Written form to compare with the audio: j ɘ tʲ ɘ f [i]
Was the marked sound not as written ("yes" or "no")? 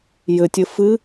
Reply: yes